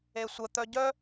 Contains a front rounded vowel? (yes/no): yes